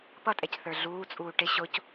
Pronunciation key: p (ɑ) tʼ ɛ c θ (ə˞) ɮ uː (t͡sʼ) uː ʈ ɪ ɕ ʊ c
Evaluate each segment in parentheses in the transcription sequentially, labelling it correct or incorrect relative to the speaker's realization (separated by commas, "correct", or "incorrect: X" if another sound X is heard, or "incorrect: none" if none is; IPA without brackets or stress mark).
incorrect: ʌ, correct, correct